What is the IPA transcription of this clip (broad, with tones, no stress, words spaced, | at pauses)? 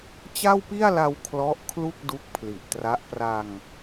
t͡ɕa˥˩wpi˥˩a̯la˧w kʰlɔ˦˥ʔ kʰlu˥˩k̚du˦˥k̚pʰli˨˩ʔtra˦˥ʔ pra˧ŋ